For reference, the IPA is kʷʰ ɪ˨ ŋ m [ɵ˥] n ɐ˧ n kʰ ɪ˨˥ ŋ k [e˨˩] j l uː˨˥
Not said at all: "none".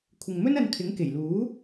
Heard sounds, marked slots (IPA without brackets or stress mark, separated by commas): ɵ˥, e˨˩